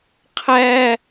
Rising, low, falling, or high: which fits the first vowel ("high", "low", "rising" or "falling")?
high